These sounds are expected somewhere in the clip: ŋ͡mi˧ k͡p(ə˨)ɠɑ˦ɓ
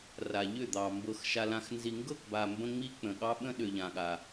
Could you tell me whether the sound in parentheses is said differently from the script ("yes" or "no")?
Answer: yes